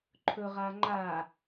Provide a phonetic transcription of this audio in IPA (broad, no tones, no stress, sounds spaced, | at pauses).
ǃʰ ɵ ʁ a ŋ͡ǃ a